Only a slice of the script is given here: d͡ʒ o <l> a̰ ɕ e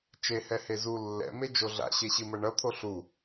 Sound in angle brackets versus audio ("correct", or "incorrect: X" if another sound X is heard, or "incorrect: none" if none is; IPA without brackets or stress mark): incorrect: ɮ